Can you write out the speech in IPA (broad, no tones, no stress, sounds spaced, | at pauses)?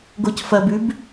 ɡ o c f ɐ b ʉ b